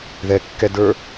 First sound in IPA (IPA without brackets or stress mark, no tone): ð